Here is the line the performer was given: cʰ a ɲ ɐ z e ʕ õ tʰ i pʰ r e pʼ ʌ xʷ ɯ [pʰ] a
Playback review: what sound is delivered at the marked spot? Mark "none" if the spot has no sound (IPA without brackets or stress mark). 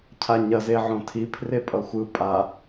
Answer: pʼ